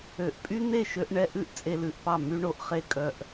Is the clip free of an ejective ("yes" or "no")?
no